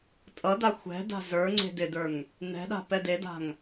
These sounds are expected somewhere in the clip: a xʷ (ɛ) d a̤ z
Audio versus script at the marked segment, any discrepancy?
yes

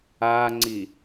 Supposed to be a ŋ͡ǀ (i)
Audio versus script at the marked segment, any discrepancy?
no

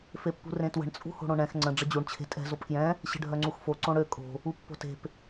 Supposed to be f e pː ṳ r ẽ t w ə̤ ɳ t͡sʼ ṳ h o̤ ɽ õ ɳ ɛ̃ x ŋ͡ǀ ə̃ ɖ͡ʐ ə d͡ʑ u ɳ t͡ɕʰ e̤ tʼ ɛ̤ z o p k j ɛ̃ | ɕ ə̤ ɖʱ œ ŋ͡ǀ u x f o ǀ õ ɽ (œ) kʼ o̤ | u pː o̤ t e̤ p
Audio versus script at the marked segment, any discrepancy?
yes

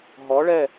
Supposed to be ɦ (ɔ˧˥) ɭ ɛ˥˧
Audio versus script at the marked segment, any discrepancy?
no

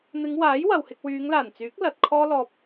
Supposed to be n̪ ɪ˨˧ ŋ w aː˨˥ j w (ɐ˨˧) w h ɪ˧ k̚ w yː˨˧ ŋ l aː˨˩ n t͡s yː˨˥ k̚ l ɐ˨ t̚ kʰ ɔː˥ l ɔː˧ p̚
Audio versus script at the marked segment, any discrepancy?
yes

